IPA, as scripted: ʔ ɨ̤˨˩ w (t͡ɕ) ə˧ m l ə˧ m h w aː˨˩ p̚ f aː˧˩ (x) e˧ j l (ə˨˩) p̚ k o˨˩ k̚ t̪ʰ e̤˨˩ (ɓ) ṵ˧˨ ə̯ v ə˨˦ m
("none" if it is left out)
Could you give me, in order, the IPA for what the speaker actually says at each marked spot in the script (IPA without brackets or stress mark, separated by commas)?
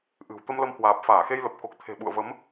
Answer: t̪, x, ə˨˩, ɓ